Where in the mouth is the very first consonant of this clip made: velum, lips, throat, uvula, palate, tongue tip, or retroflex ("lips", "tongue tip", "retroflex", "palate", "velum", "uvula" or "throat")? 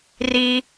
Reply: tongue tip